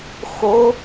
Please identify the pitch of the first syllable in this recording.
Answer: rising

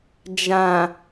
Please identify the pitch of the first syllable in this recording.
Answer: low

